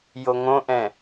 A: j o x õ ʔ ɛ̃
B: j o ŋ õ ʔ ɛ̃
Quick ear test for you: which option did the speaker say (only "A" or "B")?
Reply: B